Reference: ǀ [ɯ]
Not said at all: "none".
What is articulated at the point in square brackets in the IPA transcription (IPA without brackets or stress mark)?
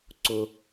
ʊ